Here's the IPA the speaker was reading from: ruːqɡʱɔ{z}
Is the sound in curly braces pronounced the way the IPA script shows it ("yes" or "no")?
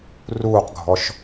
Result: no